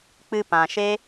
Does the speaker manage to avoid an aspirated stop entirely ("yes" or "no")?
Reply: yes